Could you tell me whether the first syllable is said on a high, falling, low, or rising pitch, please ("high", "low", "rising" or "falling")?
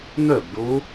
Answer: falling